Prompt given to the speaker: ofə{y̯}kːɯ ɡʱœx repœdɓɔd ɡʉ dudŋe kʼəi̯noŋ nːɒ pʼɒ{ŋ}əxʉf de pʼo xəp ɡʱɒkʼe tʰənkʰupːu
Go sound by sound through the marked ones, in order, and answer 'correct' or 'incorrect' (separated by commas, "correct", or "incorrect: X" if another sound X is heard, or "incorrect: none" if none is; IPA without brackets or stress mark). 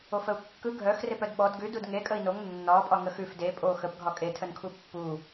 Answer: incorrect: u̯, correct